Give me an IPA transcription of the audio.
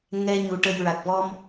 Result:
ŋ ɛ˧ ɲ u˨˩ ʈ ə˨˩ j ɹ a˨˩ k̚ v ɔ˧ m

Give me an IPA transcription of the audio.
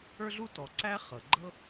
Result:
ə˞˥ ɮ u˥ t ɔ˩ ǀ æ˥ χ ɤ˩ ɡ͡ǃ ɤ˥

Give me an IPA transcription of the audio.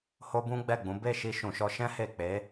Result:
h o˦ b ũ˦ ɡ͡b ɛ˦˨ ɡ͡b ũ˨˦ b e˦˨ ʃ i˧ ʃ ũ˨ ʃ ɔ˧ ʃ ɛ̃˦ h e˦˨ k͡p e˨˦

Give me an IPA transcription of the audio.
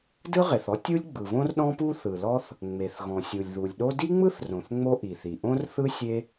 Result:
d ɯ˥ ʁ e˩ θ ɔ˥ tʲ u˥ lʲ ɡ͡b ɯ˩ β õ˥ r ɗ ɔ̃˥ p u˥ θ ɯ˩ l ɔ˥ θ | ŋ͡m e˩ θ ɣ ɔ̃˩ sʲ u˩ lʲ ð u˩ lʲ ɗ o˥ d i˥ ŋ͡m ɯ˥ θ r õ˩ θ ŋ͡m o˥ ʔ i˩ θ i˩ ʔ õ˥ r θ ɯ˥ sʲ e˥

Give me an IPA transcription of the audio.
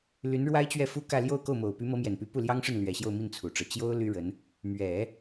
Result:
l y˧˥ n ɻ w a˥ ɪ̯ t͡ɕ ɥ ɛ˥˩ f u˥ k ä˥˧ l j o˥˧ ʊ̯ k o˥˩ ʊ̯ m o˨˩ ʊ̯ p y˧˥ m ɤ˧˥ m j ɛ˨˩ n p y˧˥ p u˥˩ l j ɑ˥ ŋ ʂ ə˥˩ n l ɥ ɛ˨˩ ɕ j o˥˧ ʊ̯ m i˥˩ n t͡sʰ u˨˩ ʈ͡ʂ ɤ˦ t͡ɕ j o˥ ʊ̯ l y˥ ɻ ə˧˥ n | m ɥ ɛ˨˩˦

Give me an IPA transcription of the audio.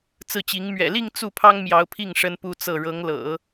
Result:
t͡s ɹ̩˥˩ t͡ɕ i˧˥ ŋ m ɥ ɛ̰˨˩ l i˥˧ ŋ t͡s u˥˩ pʰ ɑ˥ ŋ m j ɑ˧˥ ʊ̯ pʰ i˥˩ ŋ ʂ ə˥ n p u˥ t͡s ɤ˥˩ ɻ ɤ˧˥ ŋ l ɤ̰˨˩˦

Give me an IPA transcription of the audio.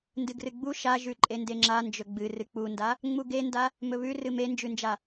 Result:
n d ɨ ɡ r ɨ ɡ͡b u ʃ a ʒ ʉ ǃʼ e n d e ŋ͡ǁ a n d͡ʒ ɵ ɡ͡b ɨ r ɨ k͡p u n d a | ŋ͡m u ɡ e n d a | m ɵ β ʉ r ɨ m e n d͡ʒ ʉ n d͡ʒ a

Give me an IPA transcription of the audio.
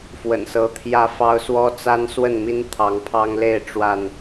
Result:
f w ə̰˨˩ n s ɤ˨˦ t̪ʰ j ä˦ f ɑ˦ ʊ̯ s w ɔ˦ t͡s a˦ n s w ə˥˨ n m i˦ n t̪ʰ ɑ˨˦ ŋ pʰ ɑ˦ ŋ l e˥˨ ɪ̯ ʈ͡ʂ w a˥˨ n

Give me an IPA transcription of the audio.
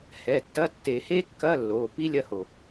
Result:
h ɛ˩˧˩ tː ɐ˧˥˧ tː e˨˩˦ h e˥ kː ɐ˧˥˧ lː o˩˧˩ p i˥ lʲ ɐ˦˨ h o˩

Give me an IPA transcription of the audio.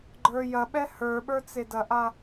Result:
ɡ͡ǃ ə˞ j ɐ ɓ ɛ h ə˞ ɓ ə˞ t͡s e d ɐ ʔ a

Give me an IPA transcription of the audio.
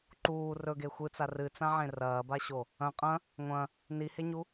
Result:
ǃ uː r ɵ ɡ e xʷ ɨ t͡s a r ɨ t͡s ã ʕ ẽ r ɐː b a ɕ o | ɐ̃ qʼ ɐ̃ | ŋʷ ɐ̃ | n i h e ɲ u

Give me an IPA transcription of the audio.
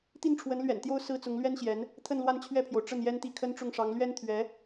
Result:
t̪ i˥˩ n ʈ͡ʂʰ w ə˧˥ n l ɥ ɛ̰˨˩ n t̪ j o˥ ʊ̯ s ɹ̩˥ t͡s ʊ˧˥ ŋ l ɥ ɛ˥ n ɕ j ɛ˧˥ n | t̪ʰ ə˥˧ n l w a˥˧ n t͡ɕʰ ɥ ɛ˥˩ pʰ j o˩ ʊ̯ ʈ͡ʂ ə˥˩ n j ɛ˥ n t̪ i˥˩ kʰ ə˥ n ʈ͡ʂ ʊ˥˩ ŋ ʂ ɑ˧˥ ŋ l ɥ ɛ˥ n t̪ʰ ɥ ɛ˧˥

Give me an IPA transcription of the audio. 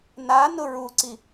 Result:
n a n ʊ ɹ u ǀ i

